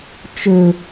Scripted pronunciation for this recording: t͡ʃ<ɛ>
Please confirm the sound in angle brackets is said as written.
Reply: no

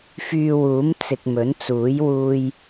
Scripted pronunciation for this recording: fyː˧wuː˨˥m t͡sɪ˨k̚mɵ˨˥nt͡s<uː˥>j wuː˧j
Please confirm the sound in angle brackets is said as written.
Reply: no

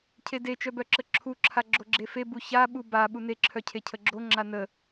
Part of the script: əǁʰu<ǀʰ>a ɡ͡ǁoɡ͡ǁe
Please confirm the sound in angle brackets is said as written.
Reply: no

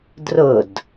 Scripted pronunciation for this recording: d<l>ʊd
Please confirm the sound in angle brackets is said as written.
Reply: no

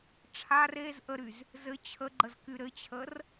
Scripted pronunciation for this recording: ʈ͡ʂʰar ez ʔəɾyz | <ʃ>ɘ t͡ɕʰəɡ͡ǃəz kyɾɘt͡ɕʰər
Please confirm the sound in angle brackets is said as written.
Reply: no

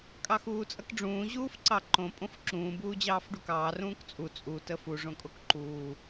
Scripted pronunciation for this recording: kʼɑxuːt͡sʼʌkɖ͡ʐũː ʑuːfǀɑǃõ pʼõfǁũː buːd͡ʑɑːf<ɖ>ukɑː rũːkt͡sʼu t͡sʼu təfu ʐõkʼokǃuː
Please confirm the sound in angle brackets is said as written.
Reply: yes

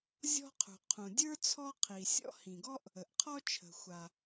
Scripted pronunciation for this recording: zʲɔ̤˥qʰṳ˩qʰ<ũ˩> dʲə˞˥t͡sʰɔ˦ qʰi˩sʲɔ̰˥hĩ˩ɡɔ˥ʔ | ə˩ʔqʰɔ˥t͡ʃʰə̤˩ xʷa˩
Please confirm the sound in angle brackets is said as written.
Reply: yes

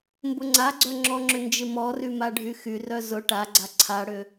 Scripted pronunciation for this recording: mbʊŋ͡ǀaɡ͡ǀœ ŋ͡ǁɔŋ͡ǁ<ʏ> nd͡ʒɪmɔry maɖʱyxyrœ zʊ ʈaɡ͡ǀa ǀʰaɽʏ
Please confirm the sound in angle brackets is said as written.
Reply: yes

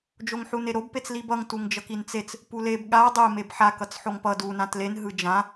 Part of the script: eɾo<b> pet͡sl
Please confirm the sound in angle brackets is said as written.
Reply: yes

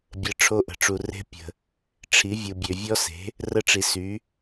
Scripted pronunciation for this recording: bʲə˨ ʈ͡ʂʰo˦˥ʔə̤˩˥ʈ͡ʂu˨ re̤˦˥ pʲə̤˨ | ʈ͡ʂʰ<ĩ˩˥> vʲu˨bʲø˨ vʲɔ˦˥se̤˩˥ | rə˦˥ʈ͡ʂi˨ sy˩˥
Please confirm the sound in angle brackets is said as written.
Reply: no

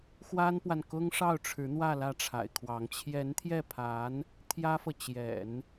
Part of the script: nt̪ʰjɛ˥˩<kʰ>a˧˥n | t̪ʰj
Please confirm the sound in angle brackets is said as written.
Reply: no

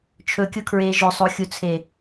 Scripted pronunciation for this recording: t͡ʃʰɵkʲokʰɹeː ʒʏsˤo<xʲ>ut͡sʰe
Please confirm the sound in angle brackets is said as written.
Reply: yes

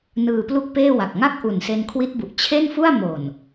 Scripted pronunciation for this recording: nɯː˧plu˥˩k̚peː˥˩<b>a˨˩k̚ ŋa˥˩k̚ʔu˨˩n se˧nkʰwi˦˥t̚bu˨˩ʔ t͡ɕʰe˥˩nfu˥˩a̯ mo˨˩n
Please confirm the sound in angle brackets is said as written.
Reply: no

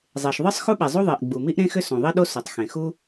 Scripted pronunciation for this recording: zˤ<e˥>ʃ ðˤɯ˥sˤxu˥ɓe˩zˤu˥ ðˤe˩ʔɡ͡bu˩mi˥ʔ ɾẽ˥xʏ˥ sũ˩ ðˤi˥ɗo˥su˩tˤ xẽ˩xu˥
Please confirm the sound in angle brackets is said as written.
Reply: no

